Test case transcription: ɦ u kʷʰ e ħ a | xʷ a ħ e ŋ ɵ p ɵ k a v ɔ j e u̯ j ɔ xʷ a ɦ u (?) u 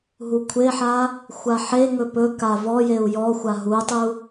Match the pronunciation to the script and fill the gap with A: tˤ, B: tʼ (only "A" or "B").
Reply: A